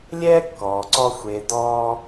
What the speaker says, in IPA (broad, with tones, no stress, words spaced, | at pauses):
lʲɛː˥kːɔː˩ǀɔ˧ xʷe˩˧ dɔː˧